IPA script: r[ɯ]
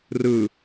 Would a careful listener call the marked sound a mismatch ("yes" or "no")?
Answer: yes